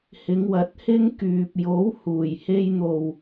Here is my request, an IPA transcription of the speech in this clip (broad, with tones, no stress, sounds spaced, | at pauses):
h ɪ˨˧ ŋ w ɐ˨˥ t̚ h ɪ˥ ŋ k yː˨ p̚ j o˨˥ w h uː˨˩ j h e˧ j n̪ o˨ w